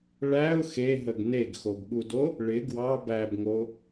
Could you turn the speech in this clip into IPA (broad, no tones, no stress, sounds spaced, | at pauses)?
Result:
ɭ æ ʊ̯ x e ɦ ə ɡ n e ɡ x o ɡ ɠ u d o | ɭ ɪ ɡ w ɑ b æ b ŋ o